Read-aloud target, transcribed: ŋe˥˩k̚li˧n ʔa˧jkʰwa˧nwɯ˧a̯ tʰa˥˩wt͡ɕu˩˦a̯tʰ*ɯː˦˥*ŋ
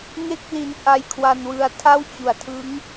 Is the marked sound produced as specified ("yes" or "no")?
no